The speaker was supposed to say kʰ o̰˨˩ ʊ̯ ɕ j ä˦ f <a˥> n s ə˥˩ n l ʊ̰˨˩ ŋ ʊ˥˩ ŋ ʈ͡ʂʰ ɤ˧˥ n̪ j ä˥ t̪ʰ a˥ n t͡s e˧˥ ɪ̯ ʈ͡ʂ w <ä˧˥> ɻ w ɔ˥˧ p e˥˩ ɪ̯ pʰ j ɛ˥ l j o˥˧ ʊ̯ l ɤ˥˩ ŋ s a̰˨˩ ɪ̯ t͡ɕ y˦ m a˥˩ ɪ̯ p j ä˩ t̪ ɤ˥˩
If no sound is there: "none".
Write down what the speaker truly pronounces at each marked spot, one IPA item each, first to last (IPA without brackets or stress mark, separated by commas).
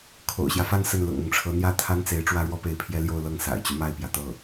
a˥˧, ä˥